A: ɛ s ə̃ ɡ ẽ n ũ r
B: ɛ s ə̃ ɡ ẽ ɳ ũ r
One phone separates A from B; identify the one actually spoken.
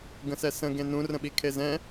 A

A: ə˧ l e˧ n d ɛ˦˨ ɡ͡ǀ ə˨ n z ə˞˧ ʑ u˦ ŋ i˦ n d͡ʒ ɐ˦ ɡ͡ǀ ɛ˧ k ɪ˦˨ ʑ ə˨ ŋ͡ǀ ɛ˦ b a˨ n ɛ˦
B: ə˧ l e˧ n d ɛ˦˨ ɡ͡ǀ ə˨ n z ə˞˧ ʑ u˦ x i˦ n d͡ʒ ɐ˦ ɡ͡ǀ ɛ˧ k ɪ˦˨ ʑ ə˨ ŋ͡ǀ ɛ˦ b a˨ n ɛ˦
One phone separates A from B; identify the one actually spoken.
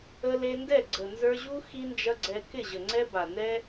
B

